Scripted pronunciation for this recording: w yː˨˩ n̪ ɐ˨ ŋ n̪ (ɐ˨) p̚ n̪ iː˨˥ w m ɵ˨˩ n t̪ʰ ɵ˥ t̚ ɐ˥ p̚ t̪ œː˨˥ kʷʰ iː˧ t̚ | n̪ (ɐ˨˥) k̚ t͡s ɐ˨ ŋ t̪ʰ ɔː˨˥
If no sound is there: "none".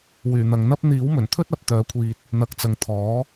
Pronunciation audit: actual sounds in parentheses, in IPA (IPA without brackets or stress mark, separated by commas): ɐ˥, ɐ˨˥